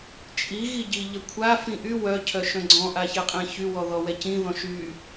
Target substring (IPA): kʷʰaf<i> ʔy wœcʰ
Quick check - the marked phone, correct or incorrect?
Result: incorrect